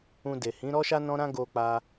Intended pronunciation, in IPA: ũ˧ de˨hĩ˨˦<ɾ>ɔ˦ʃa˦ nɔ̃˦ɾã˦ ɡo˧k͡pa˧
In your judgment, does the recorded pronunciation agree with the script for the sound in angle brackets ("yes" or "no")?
yes